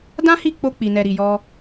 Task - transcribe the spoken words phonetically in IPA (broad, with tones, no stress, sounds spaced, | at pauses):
d ã˦ h i˦˨ k͡p o˧ k͡p i˨ n ɛ˨ ɾ i˨ j ɔ˧